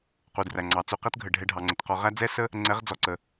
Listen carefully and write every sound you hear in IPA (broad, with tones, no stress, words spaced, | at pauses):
qu˩dræ˩ŋ͡ǀɑ˩ t͡su˧qɛ˥tɡʱə˩ɖʱɛ˧ ɖʱɑ˩ŋ͡ǀə˩tqɔ˧ ʁæ˥d͡zɛ˥sə˥ | ŋ͡ǀɛ˧˥ʁd͡zɔ˩ǀə˩